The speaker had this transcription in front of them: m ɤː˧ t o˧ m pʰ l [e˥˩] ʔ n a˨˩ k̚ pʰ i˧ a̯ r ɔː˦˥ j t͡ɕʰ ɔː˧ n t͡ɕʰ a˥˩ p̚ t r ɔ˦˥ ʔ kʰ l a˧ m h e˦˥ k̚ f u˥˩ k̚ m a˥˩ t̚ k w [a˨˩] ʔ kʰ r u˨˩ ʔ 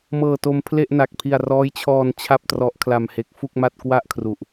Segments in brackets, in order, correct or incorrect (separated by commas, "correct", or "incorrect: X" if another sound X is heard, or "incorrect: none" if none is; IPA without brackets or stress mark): correct, incorrect: a˥˩